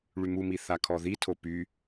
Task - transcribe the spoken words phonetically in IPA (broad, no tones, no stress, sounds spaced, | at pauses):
ɭ y m u m i θ a kʰ ɔ ð i tʰ o p y